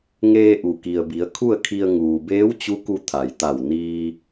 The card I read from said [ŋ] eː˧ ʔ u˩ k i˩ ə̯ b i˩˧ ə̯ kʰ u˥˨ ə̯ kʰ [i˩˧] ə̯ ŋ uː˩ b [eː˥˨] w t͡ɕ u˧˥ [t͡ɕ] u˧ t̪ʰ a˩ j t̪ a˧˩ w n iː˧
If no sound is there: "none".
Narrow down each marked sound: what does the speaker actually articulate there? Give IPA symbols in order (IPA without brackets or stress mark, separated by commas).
ŋ, i˧, eː˧˥, k